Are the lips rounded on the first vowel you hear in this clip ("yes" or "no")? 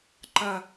no